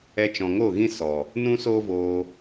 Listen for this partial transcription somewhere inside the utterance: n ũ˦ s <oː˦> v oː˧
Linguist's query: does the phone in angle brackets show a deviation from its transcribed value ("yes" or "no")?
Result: no